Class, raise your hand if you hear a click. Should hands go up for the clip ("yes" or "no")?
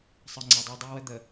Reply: yes